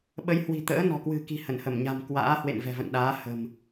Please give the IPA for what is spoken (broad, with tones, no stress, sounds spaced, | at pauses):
ɓ ə˨˦ j h w i̤˨˩ t̪ ə̰ː˧˥ n ɔ̤˨˩ k w ɨ̤˨˩ k i̤˨˩ h ə˧˩ n h ə˧˩ m ɲ a̤˨˩ m k w a̰ː˧˥ h w ḛ˧˨ n v ɛ̤˨˩ v ə̰˧˨ n ɗ aː˨˦ h ə̤˨˩ m